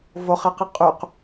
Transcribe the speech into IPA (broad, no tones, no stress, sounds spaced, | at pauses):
v o χ e q i qʼ y q